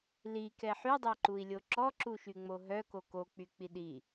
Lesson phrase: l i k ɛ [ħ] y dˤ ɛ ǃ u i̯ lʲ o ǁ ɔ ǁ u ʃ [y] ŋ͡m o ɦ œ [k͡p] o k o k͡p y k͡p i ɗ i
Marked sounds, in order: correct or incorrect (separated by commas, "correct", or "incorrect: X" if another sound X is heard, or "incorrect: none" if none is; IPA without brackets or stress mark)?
correct, correct, incorrect: k